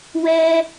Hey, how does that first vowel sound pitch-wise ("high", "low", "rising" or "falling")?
high